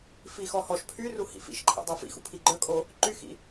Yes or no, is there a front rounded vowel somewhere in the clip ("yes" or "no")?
yes